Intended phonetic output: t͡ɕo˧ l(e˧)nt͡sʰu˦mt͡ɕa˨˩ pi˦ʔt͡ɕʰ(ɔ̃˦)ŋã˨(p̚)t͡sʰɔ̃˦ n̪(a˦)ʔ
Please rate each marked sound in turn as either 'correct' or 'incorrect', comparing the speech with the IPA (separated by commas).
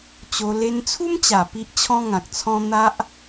correct, correct, incorrect, correct